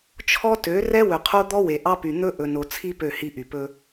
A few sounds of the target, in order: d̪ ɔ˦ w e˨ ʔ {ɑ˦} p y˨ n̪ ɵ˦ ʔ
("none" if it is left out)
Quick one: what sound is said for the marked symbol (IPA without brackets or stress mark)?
ɑ˦